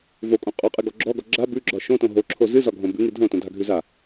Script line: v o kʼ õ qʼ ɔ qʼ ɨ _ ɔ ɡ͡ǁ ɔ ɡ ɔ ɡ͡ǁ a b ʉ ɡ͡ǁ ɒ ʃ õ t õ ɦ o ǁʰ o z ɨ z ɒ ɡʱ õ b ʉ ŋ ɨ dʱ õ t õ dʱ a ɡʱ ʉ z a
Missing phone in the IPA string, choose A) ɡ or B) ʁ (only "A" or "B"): A